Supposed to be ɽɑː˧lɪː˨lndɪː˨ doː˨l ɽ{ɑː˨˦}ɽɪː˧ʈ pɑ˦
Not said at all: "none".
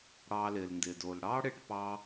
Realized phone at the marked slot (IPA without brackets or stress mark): ɑː˦